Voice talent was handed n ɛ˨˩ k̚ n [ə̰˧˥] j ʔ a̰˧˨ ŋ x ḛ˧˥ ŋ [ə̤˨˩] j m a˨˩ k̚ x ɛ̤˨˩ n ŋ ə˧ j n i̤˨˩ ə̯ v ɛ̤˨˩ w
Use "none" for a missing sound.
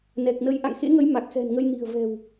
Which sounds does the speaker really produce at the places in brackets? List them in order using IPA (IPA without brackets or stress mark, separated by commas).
ə˧, ə˨˦